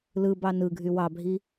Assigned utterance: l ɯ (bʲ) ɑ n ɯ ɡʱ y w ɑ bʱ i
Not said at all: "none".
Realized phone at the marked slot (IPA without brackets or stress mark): b